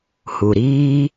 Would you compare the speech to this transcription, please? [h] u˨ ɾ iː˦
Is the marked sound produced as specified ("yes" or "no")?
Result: yes